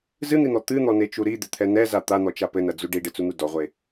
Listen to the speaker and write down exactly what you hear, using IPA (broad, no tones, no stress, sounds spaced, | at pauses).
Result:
z ɨ n̪ i n̪ ɔ t̪ ɨ n̪ ɔ n e t͡ʃ u ɾ i d̪ e t̪ʰ ɛ n ɛ z a t̪ a n̪ ɔ t͡ʃ a p ɘ n ɐ d͡z u ɖ i ɖ ɨ t͡s u n̪ u d ɔ ʁʷ e